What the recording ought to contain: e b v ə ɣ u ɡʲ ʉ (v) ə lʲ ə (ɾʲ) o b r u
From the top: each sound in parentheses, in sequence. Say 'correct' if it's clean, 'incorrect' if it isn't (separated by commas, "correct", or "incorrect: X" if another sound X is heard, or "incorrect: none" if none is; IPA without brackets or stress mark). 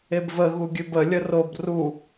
incorrect: b, incorrect: r